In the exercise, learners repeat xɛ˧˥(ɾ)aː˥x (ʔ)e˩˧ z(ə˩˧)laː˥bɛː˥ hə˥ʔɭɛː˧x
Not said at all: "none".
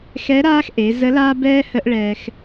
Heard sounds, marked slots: ɾ, ʔ, ə˧˥

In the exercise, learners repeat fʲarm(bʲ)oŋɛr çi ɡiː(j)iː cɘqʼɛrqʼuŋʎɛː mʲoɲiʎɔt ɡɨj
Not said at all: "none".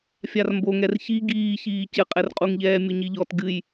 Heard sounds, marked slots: b, ç

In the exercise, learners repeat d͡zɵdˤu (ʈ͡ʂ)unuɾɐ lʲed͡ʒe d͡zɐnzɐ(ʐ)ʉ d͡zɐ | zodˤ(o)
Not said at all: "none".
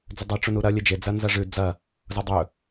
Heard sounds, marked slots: ʈ͡ʂ, ʐ, ɵ

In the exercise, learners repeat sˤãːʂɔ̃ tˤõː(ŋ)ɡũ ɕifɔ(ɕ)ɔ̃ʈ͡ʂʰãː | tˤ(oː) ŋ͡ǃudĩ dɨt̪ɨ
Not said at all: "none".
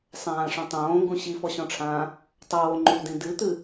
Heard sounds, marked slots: ŋ, ɕ, oː

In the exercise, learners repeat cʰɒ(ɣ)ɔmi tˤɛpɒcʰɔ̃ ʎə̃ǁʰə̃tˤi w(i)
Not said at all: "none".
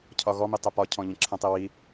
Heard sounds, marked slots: ɣ, i

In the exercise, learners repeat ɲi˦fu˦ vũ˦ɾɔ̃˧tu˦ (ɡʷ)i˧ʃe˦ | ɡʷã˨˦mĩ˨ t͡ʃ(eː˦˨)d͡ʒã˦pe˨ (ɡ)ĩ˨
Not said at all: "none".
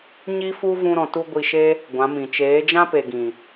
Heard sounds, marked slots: ɡʷ, eː˨˦, ɡ

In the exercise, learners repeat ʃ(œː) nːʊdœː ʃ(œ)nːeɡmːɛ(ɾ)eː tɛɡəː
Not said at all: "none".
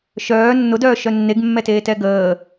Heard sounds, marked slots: œː, œ, t

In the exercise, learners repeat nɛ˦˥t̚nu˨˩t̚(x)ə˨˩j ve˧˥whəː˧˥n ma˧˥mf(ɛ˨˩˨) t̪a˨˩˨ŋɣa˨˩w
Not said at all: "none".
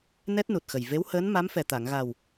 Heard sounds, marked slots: x, ɛ˨˩

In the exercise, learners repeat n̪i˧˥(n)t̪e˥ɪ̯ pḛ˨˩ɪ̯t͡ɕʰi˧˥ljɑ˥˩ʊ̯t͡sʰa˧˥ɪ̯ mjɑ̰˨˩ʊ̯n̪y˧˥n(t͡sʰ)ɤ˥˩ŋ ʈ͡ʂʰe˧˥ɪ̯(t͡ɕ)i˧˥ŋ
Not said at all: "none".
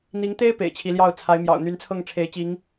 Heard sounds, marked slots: ŋ, t͡sʰ, t͡ɕ

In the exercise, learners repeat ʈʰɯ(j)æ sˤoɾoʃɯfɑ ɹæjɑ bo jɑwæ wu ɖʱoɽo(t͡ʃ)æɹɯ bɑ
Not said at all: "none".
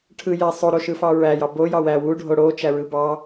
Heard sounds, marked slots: j, t͡ʃ

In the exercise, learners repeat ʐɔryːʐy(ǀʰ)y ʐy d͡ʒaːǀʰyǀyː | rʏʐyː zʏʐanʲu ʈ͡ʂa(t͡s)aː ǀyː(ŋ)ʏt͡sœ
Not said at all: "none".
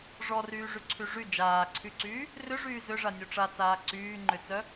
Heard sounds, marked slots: ǀʰ, t͡s, ŋ͡ǃ

